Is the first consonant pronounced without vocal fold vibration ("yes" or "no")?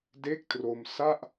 no